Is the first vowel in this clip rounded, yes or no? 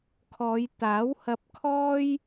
yes